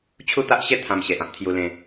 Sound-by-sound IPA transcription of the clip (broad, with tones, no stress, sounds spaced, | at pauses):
t͡ɕʰ u˥˧ t̪ a˦ ʔ ɕ e˥˧ t̪ʰ ã˧ m ɕ e˨ ʔ ã˦ p̚ t̪ʰ j u˧ l ẽ˧